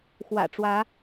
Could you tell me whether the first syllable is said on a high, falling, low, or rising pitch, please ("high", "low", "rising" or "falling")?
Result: low